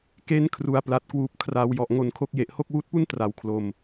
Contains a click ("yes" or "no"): no